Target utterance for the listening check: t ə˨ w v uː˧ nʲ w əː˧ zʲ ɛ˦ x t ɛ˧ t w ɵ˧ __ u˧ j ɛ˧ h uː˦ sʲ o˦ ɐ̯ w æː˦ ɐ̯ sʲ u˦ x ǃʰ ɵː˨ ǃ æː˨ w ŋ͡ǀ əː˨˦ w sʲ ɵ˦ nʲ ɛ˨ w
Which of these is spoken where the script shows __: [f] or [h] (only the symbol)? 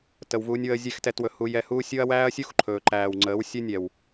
h